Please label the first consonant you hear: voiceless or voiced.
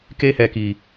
voiceless